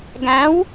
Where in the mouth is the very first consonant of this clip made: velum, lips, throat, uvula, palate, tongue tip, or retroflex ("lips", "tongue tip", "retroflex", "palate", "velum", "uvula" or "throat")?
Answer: velum